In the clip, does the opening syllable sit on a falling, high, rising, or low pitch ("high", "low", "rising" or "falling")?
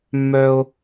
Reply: high